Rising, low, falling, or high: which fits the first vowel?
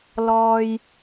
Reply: low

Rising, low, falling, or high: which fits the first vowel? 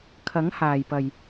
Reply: rising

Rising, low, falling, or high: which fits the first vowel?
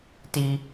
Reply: high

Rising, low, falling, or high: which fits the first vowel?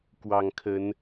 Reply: low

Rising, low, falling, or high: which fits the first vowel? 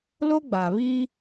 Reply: high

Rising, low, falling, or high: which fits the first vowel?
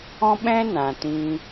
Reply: high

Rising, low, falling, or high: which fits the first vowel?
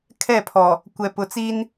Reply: falling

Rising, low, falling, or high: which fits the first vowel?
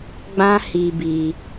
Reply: high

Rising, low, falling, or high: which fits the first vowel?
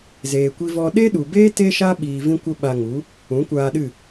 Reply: low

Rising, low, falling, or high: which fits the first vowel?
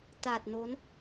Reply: low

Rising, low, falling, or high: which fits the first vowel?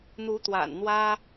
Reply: rising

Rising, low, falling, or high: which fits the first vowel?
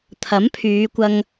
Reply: rising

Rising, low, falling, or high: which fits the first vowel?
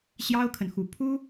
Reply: high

